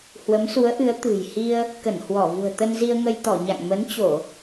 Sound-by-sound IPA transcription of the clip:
hwə˨˦msu˨˦ə̯ʔɨ˨˦ə̯ t̪ɨ̤˨˩jhi˧ə̯ | kə˧˩nhwɔ˧˩vṳ˨˩ə̯ t̪ə˧nzi˧ə̯ŋə˧jt̪ɔ˧˩ ɲa̰˧˨ŋmə˨˦nt͡ɕo˧˩˨

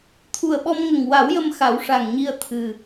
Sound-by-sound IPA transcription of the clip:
t̪ʰu˨˩ə̯ɓɔ˧mŋə˨˩ŋ wa˨˩˦wjə˧m xa˨˩˦wʂa˨˩ŋɲi˧ə̯ t̪ʰɨ˨˩

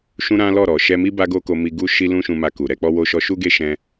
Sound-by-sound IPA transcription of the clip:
ʃũ˦ɾã˦ lɔ˦˨ ɾɔ˨ʃɛ˧mi˦ ba˦ɡo˦ko˧mi˧ ɡu˦ʃi˦ lũ˦ʃũ˧ma˧ ku˨ ɾɛ˨˦k͡pɔ˦wo˦ʃɔ˦ ʃu˦ɡe˦ʃɛ̃˧

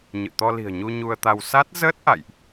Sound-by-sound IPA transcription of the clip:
ɲɨ̰˧˨ t̪ɔ˧li̤˨˩ə̯ɲu˧ ɲu˧ə̯t̪a˧w sa˦˥t̚ zəː˦˥t̚ ʔa̰˧˨jʔ

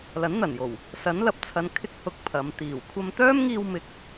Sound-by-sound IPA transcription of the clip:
lɐ˨˥nn̪ɐ˨˩njo˨˩w | sɐ˨˥nlɐ˨p̚t͡sʰɐ˨˧n kʰɪ˧k̚hʊ˨˥k̚ pʰɐ˨˧m t̪iː˨˩w kʷʰɐ˧mt̪œː˥mŋiː˧wmɪ˨˥k̚

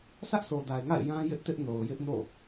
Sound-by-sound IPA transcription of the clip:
sä˦ʔsʰo˨da˨ɪ̯ŋa̰˦˨ɪ̯ jã˦jɪ˦ʔtɪ˦ʔ no˨ʊ̯jɪ˦ʔno̰˦˨

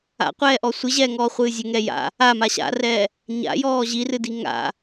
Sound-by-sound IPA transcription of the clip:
a̰qʷɛːʔɔ sʷɨʑɛːŋɔːχʷɨː zʲɘŋɛ ja̰ | ama ɕa̰rɛː | ɲa̰jɔː ʑirɨdi ŋa̰

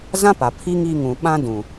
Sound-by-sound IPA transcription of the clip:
zã˦ pa˨ pʰi˦ŋi˦˨ŋũ˨ ɓã˦ dũ˨

